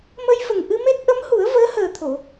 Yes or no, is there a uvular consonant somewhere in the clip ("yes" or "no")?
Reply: no